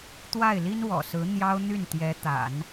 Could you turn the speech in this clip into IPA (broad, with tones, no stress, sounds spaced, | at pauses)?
t̪ w a˥˩ ɪ̯ l i˥ n w ɔ̰˨˩ s ɹ̩˧˥ n̪ j ɑ˥ ʊ̯ n̪ y˥˩ n t̪ j ɛ˧˥ t̪ a̰˨˩˦ n